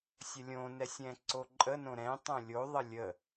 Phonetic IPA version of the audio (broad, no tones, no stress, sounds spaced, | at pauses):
sʲ ə lʲ õ n ɛ sʲ ɛ̃ ǀ o ǃʼ ə n õ ɾ ɛ̃ tˤ õ lʲ o ðˤ ə lʲ ə